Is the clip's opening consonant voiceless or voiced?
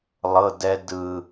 voiced